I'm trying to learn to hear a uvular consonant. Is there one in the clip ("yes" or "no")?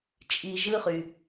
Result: yes